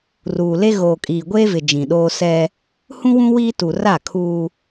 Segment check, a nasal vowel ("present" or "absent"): present